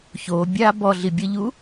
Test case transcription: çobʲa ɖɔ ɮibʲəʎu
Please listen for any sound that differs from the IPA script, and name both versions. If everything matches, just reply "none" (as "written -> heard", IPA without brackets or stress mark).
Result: ɖ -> b